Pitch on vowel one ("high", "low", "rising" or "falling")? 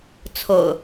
low